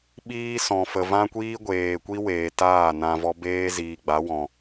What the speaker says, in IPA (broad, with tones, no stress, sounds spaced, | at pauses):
ɓ iː˦ s ɔ̃˨ f ə˨ v ã˦ kʷ iː˦ ɡʷ eː˨ kʷ i˦ w eː˨ t aː˦˨ n ã˧ v ɔ˦ b eː˦ z iː˨ ɡ͡b a˨˦ w ɔ̃˨